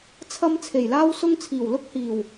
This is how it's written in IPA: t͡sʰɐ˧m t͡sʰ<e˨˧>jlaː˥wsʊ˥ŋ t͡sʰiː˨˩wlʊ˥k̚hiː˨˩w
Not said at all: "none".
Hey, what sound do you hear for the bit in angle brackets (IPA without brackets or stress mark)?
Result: e˨˩